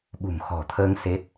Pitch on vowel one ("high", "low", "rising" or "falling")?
low